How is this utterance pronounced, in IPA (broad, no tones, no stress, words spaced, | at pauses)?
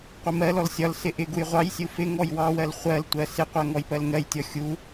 qʷɪmɜlɔl sʲɒlsɪ ʔɪ ɡujʁʷɑjsʲu fɪ ŋɔjwɑwɜl χʷɜltʷɜ sɪqʷɜ ŋɔjpɜlŋɜjtʲɔ xʲu